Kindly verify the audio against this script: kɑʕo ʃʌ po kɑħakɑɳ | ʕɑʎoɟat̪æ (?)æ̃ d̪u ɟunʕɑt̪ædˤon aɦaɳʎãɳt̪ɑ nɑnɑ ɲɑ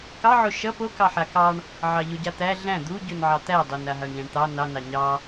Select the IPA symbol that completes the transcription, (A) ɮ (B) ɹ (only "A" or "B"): A